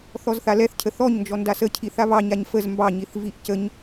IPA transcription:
θ ɔ z θ a l ɛ θ cʰ ə θ ɔ ɲ n d͡ʒ ɔ n d a s ə cʰ i θ a β ɑ ɲ a ɲ f ə z m b ɑ ɲ i θ v i ʔ c ə ɲ

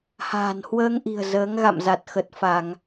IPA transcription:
h a̤ː˨˩ n h w əː˧ ŋ ʔ i̤˨˩ ə̯ z əː˨˦ ŋ ɣ a̰˧˨ m z a˨˩ t̚ x ə˨˩ t̚ f a˧˩˨ ŋ

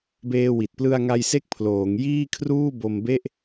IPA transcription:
b eː˧ w i˨˩ t̚ p l ɯ˧ a̯ ŋ a˧ j s e˥˩ k̚ pʰ l oː˩˦ ŋ j iː˥˩ kʰ r uː˥˩ b o˧ m b e˥˩ ʔ

